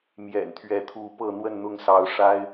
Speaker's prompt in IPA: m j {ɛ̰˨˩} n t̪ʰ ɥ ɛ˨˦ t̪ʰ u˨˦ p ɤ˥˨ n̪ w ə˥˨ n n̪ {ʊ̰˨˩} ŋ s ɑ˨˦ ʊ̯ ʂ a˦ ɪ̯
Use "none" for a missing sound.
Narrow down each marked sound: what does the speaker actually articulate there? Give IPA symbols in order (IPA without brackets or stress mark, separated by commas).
ɛ̰˨˩, ʊ˥˨